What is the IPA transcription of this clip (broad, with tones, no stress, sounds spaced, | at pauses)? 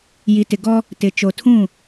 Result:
j i˨ t ɪ˨ ɡ ɔ˦ | t ɪ˨ t͡ʃ o˨ tʰ ũ˦˨